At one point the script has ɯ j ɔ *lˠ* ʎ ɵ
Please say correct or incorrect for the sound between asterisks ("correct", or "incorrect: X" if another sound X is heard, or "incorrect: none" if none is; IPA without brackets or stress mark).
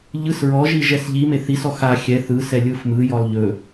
correct